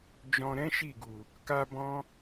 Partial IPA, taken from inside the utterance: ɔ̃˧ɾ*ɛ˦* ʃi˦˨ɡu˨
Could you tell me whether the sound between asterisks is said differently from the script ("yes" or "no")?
yes